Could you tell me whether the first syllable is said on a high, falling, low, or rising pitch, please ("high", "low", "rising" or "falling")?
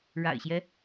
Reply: low